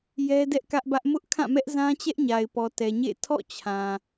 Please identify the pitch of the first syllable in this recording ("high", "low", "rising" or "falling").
high